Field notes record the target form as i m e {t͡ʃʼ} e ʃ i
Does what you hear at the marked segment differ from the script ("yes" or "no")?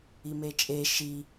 no